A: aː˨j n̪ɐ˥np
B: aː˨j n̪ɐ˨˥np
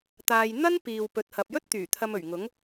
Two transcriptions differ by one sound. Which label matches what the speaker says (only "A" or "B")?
A